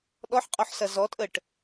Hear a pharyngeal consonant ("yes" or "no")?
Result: yes